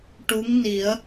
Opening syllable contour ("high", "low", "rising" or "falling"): rising